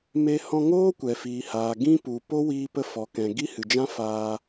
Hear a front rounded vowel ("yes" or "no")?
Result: no